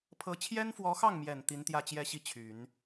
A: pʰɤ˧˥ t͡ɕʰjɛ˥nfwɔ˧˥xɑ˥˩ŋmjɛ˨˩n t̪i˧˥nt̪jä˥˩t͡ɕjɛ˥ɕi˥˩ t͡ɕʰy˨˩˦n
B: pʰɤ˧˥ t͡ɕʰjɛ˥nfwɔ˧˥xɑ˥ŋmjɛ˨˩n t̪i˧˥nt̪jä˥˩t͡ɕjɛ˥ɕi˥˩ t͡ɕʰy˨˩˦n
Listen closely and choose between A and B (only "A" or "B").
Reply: A